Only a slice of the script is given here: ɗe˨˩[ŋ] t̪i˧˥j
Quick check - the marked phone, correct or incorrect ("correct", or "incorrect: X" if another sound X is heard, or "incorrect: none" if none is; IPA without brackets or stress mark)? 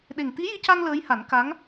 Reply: correct